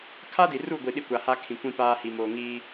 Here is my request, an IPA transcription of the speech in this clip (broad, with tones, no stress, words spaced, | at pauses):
kʰa˦di˨ru˦˨ɡʷi˨ ɗi˦kʷa˨haː˦ kʰĩ˨kʷĩ˦ paː˦hi˨ moː˨ ŋiː˦